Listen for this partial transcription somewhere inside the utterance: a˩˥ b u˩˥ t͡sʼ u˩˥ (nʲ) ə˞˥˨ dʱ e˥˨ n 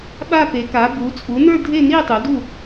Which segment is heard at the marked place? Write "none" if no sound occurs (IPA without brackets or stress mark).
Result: n